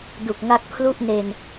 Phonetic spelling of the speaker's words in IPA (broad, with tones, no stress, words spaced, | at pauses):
du˨˩k̚ŋa˦˥k̚pʰlu˥˩ʔne˧n